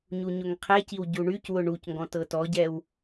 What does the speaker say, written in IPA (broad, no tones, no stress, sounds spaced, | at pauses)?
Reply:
ɲ u ɲ ʊ ŋ qʰ ɛ c i w ɟ u ɳ y c w ʊ ɳ u c ŋ ɡ ɔ̃ t ɤ t ɔ ɟ ɛ w